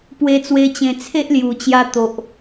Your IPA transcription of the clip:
pwe˧t͡swe˧ t͡ɕẽ˧ t͡sʰe˦ʔlju˨˩t͡ɕja˧ t̪o˨ʔ

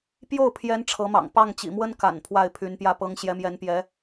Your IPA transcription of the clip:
pjo˥˩ʊ̯pʰjɛ˧˥n ʈ͡ʂʰɤ˧˥mɑ̰˨˩ŋ pɑ˥˩ŋt͡ɕḭ˨˩mwə˥n ka̰˨˩n pʰwa˥˩ɪ̯pʰy˧˥npjä˥˩pɤ˥ŋ ɕjɛ˧˥mjɛ˧˥npjɛ˧˥

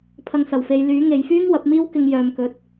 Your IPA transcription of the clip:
pʰɐ˧ŋsɐ˨˩wfe˨˧j lyː˨˥ ŋe˨jfyː˥ŋ wɐ˨˥p̚miː˥w kɪ˧ŋjœː˨mkɵ˨˥t̚

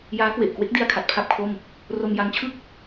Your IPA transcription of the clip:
jaː˦˥kwe˨˩ʔkwe˦˥k̚di˧a̯ kʰa˨˩t̚pʰa˥˩p̚kʰo˥˩m | ro˧mja˧ŋt͡ɕʰɯ˥˩k̚

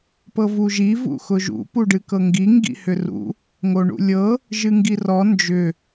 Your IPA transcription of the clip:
pɤvuʒi vṵxʊʒṵ puɖɨkɤŋɡi ŋɡḭhʏrṵ | ŋoɳṵlʲɤ | ʒɨŋɡirɔ nd͡ʒʏ

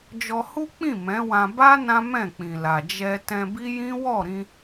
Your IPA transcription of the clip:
d͡ʒɔ˧hu˦k͡pĩ˦˨ mɛ̃˨˦wã˧ ba˦ nã˦mɛ̃˦˨k͡pĩ˨la˨ d͡ʒɛ˧ tɛ̃˧bi˦jĩ˦ wɔ˦˨ɾĩ˧

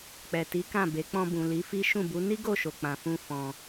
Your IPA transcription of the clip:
k͡pɛ˨ti˨˦kã˦˨be˨˦ k͡pɔ̃˧bũ˨ li˨˦fi˦ ʃũ˦˨bu˨˦ ni˦ɡo˦˨ʃo˨ k͡pã˨fũ˧ fɔ̃˧

